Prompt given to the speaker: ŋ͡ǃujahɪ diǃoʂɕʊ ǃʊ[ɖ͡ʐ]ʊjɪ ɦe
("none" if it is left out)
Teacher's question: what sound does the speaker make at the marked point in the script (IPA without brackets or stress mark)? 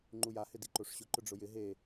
ɖ͡ʐ